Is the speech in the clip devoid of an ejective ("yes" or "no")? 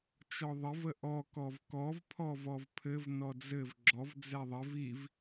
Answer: yes